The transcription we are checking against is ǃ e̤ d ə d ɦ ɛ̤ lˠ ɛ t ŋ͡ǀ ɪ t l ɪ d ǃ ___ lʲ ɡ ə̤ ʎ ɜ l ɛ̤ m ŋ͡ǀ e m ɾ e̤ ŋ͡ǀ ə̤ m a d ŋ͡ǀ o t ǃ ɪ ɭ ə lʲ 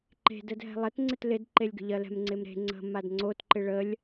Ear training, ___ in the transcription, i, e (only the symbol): e